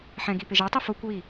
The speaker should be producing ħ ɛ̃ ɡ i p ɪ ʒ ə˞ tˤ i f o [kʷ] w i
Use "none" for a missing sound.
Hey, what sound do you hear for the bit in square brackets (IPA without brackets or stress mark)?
kʷ